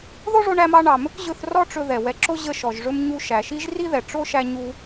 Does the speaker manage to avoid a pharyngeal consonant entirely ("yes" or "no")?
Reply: yes